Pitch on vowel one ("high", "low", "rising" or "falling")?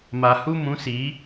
low